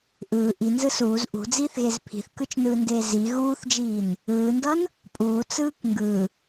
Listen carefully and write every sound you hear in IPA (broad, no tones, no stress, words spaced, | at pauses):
ʔɯː ʔinzɯ suːz ʔṳd͡ziːθɣez pʰi̤θkɯt͡ʃnɯːndeː zi ɣuːθd͡ʒiːn | ɯːndʌn | pʼuːt͡sɯːk ŋɡɯ